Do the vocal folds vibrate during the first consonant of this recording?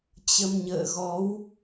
no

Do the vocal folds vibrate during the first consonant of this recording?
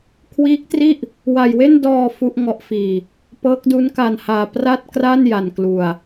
no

